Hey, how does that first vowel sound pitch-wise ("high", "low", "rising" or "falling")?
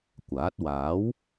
rising